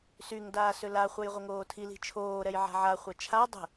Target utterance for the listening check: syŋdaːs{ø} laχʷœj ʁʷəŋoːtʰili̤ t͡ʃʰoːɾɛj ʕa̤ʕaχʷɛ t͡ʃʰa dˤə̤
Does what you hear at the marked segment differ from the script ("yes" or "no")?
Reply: no